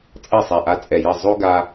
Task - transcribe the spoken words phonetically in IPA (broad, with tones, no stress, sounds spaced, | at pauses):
t͡sʼ ɐ˥˩ sˤ ɛ˨˩ ʔ a˧ t͡sʼ ɛ˨˩ j ɐ˥˩ zˤ o˥ ɡ a˧